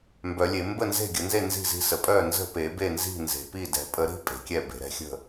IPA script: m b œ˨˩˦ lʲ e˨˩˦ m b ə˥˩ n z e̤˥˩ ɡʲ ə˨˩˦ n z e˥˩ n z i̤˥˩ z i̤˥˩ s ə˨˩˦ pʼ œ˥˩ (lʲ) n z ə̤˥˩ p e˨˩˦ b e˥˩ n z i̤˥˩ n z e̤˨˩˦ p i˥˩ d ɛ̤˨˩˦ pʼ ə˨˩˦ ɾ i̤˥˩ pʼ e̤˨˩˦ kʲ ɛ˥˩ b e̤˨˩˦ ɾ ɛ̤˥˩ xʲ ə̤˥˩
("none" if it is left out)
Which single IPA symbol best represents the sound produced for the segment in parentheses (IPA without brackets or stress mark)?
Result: none